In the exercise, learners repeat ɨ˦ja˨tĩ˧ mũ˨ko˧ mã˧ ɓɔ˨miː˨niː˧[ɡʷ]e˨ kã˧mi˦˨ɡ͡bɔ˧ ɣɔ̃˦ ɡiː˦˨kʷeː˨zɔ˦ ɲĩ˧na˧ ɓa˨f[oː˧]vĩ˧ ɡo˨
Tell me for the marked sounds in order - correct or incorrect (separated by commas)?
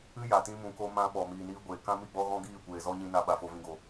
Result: correct, incorrect